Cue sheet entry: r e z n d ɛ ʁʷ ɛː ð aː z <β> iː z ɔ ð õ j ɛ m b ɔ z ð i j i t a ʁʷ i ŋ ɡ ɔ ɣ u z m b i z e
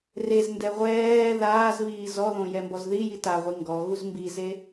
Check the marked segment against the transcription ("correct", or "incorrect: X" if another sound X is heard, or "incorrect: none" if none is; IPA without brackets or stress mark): correct